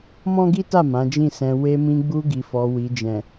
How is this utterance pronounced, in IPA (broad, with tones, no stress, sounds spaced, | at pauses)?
m ɔ̃˦ ɡ i˦ t a˦˨ m ã˨˦ d͡ʒ ĩ˦˨ s ɛ̃˧ w e˧ m ĩ˧ ɡ͡b u˧ ɡ i˨ f ɔ˨ w i˨ d͡ʒ ɛ̃˨